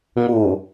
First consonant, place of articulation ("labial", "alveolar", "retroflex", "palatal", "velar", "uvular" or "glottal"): velar